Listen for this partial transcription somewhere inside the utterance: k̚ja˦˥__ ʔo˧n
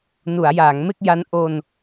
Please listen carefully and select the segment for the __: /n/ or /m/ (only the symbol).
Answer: n